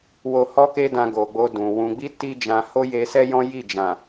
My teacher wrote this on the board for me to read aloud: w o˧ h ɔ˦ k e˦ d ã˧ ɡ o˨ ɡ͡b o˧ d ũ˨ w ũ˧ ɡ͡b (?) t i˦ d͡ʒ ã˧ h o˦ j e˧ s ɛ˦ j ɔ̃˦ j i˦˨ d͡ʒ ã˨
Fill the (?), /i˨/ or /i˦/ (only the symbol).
i˦